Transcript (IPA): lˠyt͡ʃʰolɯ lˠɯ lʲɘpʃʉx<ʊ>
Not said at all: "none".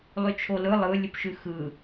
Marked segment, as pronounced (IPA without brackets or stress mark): ɯ